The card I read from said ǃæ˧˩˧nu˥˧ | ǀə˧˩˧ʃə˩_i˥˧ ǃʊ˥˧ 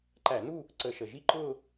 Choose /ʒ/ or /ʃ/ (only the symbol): ʒ